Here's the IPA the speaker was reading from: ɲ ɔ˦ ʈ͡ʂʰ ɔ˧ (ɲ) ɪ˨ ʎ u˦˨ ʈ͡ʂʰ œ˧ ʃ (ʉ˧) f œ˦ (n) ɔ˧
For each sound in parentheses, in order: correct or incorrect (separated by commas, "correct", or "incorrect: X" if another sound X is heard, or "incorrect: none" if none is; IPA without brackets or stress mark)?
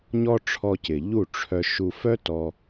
incorrect: c, incorrect: u˧, incorrect: t